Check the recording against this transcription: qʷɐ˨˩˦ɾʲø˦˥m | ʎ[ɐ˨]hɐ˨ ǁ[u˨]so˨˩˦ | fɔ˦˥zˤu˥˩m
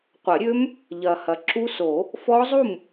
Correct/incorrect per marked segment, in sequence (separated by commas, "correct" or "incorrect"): correct, incorrect